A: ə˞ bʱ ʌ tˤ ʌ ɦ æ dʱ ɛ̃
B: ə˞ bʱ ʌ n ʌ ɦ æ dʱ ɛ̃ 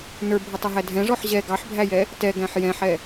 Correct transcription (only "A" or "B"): A